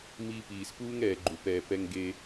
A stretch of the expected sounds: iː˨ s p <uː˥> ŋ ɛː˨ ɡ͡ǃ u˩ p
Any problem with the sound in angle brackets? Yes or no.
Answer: no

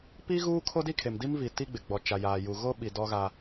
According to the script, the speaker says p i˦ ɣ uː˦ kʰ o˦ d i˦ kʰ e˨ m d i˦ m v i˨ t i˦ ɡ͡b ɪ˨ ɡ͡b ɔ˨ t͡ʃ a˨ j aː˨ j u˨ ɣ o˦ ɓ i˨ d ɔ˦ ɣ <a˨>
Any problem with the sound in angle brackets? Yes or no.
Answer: yes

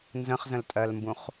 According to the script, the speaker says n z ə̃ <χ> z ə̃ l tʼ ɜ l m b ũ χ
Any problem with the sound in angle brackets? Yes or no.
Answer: no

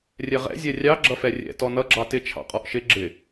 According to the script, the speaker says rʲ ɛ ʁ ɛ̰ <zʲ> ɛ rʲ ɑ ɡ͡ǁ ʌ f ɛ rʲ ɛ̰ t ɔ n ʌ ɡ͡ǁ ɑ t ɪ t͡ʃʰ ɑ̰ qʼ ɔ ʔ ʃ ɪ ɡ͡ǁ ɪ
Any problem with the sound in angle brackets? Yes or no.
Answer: no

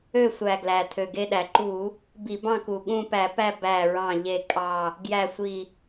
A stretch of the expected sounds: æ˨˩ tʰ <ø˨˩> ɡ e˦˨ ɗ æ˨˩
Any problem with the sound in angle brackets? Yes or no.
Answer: no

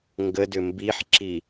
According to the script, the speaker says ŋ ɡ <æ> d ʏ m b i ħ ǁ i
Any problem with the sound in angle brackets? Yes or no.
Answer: yes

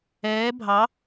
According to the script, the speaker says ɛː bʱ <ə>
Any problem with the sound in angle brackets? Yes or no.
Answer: yes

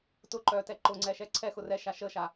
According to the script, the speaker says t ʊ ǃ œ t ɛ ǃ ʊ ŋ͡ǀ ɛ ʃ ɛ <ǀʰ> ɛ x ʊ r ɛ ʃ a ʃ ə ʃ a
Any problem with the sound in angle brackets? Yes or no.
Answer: no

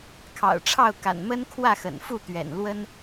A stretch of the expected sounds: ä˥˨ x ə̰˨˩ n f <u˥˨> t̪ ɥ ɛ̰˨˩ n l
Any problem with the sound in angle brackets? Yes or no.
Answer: no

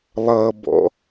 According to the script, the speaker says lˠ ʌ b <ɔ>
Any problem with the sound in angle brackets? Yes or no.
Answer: yes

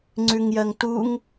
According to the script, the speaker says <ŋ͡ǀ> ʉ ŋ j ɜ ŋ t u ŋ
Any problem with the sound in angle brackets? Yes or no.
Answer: no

